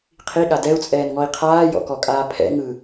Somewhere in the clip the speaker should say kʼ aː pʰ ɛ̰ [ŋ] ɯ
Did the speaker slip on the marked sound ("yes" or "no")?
no